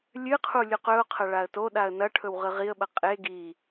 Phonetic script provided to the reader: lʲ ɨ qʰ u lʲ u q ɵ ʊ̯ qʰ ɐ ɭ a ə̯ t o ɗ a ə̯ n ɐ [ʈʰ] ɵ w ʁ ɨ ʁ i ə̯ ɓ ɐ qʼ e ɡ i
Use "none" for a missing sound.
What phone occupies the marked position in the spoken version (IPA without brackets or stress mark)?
ʈʰ